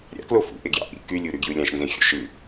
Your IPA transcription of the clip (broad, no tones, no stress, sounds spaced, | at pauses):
ɾʲ ɑ̰ k l o f ṵ ʔ e ɡ j ɑ̰ ʔ ḭ k y lʲ u ɾ y ɡ j ɯ lʲ ɑ̃ ʃ n z ẽ xʲ o̰ ʃ ɯ